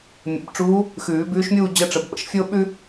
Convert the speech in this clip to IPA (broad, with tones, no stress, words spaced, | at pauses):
mʲə̰˨˩˦bʈ͡ʂuː˧˥ | xʉː˨˩˦bʉː˧˥ʃmʲuː˥˧ d͡ʑə˧˥˧ʈ͡ʂə˨˩˦b ɓə̰˧˥˧ʃfʲoː˥ ɓʉ˥